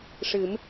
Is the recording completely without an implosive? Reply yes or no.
yes